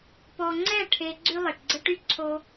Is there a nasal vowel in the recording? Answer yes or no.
no